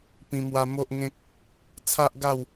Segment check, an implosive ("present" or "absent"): absent